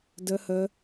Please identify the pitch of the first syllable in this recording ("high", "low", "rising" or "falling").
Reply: high